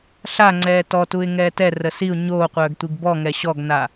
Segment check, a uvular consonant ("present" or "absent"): present